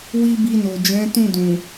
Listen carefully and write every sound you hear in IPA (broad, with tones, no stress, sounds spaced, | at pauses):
w i˦ b i˧ n o˨ d͡ʒ ɛ̃˨˦ t ũ˦˨ d ũ˨